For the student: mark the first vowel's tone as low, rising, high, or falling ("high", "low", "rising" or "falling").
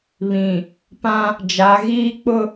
low